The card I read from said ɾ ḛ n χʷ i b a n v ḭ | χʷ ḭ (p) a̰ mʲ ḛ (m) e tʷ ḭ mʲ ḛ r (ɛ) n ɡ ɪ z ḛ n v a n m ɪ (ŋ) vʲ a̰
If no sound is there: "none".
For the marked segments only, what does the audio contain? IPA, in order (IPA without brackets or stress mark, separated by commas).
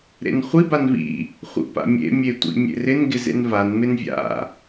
p, mʲ, ɪ, n